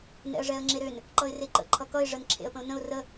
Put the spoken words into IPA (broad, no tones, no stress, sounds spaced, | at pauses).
n ɛ̰ ə̯ ʐ ɛ ə̯ ŋ͡ǁ e ɾ ø n | ǃ ʌ ɪ̯ r e ǃ ə̰ ǃʰ ʌ k ʌ ɪ̯ ʐ ə n ǁʰ ḛ ə̯ p ə̃ ʊ̯ n ə̃ ʊ̯ r ə